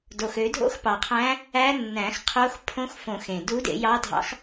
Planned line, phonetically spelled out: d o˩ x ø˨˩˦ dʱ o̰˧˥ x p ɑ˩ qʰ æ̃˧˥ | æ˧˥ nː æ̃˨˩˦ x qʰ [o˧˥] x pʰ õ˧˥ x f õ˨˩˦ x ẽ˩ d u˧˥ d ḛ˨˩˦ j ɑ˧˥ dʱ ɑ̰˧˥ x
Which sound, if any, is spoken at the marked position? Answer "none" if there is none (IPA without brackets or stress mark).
o˧˥